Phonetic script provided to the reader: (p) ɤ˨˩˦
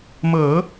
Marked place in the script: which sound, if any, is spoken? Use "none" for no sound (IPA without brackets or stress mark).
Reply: m